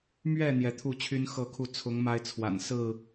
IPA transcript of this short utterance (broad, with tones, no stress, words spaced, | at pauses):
mɥɛ˥˨ n̪jɛ˨˦t̪ʰu˥˨t͡ɕʰy˦n xɤ˥˨kʰu˥˨ t͡sʰʊ˨˦ŋ ma˦ɪ̯t͡sʰwa̰˨˩n sɹ̩˥˨